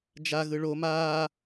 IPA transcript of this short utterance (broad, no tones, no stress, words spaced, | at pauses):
d͡ʒa ɣɯɭo maː